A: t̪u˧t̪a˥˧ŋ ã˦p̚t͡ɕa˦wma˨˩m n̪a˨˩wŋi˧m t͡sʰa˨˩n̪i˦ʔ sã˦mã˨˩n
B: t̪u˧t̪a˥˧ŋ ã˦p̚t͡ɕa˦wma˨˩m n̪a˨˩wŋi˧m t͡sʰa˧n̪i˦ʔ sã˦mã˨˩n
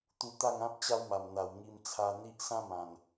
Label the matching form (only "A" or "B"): B